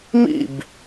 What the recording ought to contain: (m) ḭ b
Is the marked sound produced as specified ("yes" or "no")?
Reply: yes